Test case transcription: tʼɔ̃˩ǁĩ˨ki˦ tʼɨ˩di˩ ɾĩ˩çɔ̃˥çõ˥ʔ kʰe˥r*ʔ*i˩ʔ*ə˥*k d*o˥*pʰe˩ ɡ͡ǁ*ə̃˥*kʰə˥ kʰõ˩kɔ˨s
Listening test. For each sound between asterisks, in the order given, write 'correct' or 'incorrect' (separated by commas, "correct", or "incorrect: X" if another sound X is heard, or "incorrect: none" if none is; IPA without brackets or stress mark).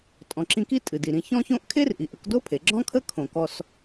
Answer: correct, incorrect: ə˨, correct, incorrect: ɔ̃˥